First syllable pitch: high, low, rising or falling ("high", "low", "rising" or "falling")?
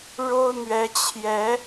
high